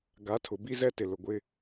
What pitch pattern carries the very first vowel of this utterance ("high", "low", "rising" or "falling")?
rising